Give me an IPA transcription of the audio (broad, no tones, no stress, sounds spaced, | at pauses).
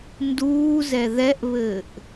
n d uː z ɛ ð ɛ ʔ β ɘː ʔ